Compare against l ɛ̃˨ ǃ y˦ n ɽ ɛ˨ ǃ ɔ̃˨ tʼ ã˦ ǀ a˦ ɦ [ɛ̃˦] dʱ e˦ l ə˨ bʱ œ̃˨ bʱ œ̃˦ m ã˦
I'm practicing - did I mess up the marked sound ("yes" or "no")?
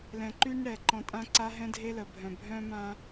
no